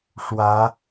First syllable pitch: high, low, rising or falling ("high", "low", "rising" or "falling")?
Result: rising